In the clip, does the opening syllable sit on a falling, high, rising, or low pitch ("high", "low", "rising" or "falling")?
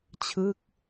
falling